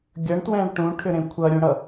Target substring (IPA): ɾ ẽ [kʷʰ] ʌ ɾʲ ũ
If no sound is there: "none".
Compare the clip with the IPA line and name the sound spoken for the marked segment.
kʷʰ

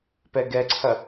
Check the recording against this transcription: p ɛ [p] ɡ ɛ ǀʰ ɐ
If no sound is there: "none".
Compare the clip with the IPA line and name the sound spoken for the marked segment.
none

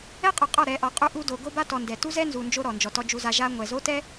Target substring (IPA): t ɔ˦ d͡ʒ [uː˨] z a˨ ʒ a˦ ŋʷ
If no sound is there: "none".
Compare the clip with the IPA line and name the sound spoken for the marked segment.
u˨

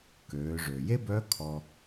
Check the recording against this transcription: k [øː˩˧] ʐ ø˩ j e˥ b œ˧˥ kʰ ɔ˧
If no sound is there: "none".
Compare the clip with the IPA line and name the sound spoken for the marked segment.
øː˩˧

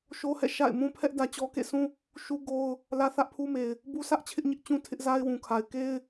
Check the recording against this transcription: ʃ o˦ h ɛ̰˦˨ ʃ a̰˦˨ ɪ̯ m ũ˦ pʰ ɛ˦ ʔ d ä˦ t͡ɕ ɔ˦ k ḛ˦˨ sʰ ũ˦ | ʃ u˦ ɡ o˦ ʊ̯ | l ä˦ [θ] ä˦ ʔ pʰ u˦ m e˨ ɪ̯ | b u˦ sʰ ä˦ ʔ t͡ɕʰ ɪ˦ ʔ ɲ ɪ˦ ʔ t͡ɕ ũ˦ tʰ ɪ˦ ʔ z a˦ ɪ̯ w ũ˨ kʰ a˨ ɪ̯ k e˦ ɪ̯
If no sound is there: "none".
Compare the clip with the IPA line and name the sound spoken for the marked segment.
θ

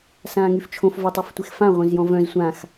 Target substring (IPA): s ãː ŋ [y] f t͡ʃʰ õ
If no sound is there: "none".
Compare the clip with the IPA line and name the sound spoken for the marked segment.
y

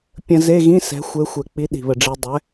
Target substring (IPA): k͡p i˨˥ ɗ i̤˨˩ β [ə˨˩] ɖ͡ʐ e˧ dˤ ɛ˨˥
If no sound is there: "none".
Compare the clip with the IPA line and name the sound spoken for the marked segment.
ə˨˩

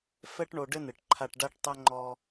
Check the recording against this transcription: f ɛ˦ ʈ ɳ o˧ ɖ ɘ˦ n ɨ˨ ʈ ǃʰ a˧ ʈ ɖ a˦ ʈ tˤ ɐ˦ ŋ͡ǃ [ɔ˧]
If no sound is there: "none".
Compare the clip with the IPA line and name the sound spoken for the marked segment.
ɔ˧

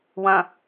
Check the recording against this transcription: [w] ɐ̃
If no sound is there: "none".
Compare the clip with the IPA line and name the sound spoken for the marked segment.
w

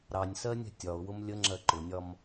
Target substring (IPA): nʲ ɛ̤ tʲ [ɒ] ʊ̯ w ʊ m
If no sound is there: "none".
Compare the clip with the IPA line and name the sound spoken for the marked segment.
ɒ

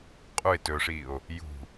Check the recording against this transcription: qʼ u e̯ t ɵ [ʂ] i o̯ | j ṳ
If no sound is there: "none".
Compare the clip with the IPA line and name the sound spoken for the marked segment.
ʂ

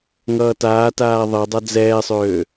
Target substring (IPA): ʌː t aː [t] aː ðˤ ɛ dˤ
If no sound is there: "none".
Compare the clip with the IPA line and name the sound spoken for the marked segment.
t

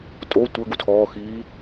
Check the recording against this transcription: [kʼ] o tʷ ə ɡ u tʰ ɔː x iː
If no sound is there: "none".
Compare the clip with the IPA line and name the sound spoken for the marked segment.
tʼ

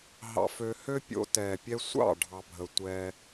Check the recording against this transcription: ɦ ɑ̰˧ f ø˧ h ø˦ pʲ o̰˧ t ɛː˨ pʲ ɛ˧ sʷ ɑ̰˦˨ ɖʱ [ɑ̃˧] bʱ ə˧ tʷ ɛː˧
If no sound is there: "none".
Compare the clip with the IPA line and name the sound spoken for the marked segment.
ɑ˧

